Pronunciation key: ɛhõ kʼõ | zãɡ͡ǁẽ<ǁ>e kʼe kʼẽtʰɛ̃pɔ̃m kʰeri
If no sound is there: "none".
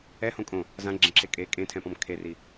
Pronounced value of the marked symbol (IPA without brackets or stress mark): ǁ